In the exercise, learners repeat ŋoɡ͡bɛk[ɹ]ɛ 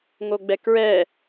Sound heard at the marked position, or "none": ɹ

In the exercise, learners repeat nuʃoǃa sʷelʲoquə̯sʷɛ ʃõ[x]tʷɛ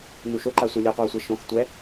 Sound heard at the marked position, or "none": x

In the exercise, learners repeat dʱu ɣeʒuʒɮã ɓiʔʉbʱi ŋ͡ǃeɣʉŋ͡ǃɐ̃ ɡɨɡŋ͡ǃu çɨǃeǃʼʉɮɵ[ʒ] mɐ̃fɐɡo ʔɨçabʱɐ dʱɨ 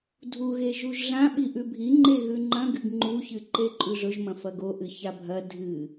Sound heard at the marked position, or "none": ʒ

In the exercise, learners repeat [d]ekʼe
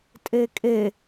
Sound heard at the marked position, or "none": tʼ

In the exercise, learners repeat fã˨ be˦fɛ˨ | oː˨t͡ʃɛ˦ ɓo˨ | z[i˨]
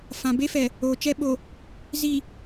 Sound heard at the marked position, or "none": i˨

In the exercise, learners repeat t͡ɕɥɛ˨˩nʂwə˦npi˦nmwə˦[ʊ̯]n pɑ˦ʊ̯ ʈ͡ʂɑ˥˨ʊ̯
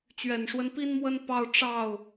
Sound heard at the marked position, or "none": none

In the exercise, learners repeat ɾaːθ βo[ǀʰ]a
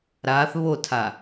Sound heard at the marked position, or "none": tʰ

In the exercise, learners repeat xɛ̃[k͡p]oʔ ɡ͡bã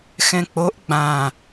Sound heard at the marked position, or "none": k͡p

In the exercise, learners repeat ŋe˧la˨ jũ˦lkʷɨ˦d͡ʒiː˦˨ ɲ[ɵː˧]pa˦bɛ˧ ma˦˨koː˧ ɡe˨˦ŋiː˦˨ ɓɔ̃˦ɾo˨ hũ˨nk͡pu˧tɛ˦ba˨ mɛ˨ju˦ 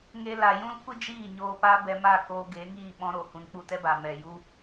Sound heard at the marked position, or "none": oː˧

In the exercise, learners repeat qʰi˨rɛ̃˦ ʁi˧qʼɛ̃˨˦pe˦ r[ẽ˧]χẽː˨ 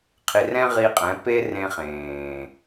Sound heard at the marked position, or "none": ẽ˧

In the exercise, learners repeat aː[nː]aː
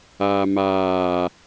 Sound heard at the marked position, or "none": m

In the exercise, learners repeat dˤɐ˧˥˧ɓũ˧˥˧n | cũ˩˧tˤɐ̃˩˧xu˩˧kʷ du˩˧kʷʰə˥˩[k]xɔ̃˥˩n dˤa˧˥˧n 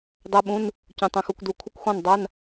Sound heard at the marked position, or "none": kʷ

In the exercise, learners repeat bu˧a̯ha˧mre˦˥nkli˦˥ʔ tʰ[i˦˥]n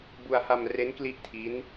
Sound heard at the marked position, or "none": i˦˥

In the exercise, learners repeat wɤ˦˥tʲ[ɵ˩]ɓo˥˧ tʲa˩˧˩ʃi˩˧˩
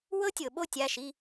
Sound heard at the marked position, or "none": ɤ˩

